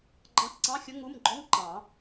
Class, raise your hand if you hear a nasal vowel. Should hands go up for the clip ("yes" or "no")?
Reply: yes